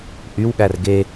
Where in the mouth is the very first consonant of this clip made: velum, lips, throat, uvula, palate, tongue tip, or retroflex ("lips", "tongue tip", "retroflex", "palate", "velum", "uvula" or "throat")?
throat